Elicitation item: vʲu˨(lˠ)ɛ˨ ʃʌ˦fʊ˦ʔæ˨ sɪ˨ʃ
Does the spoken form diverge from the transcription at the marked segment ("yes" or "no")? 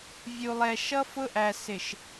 no